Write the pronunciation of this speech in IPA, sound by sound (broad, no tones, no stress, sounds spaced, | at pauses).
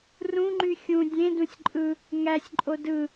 r ũ ŋ͡ǃ y xʲ ũ dʲ ẽ d ũ sʲ ǃʼ ɯ | ŋ æ sʲ ǃʼ o d ɯ